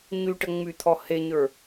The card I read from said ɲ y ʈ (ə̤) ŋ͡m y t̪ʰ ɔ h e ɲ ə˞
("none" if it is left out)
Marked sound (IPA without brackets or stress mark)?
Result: ə